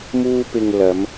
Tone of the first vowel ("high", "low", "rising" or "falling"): high